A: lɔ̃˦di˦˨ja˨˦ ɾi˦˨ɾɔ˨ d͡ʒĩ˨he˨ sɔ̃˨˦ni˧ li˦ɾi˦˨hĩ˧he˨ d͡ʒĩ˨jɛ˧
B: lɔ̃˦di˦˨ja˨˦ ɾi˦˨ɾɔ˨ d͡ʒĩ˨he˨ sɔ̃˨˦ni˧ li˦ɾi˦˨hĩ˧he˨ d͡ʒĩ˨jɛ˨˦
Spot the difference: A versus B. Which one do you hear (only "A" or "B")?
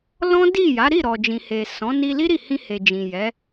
B